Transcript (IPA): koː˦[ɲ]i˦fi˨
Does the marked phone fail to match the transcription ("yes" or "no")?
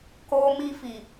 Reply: yes